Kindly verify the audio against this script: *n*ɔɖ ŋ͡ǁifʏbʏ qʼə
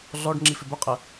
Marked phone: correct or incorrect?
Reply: incorrect